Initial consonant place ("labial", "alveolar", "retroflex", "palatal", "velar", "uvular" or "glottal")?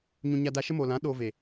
palatal